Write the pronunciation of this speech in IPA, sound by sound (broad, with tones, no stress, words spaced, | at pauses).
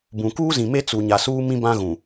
bũ˨ kuː˦zĩ˨me˦ t͡su˨ɲa˨suː˦ mĩ˦bã˦ɣũ˨